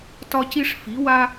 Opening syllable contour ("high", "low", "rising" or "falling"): high